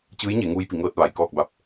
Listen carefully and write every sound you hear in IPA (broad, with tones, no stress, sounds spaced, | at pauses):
t͡ɕ ɯː˧˥ j ɲ e˩˧ ŋ uː˧ j p i˩˧ ŋ ɤː˧ t̚ ʋ a˩ j k ɔː˥˨ k̚ b a˧˥ p̚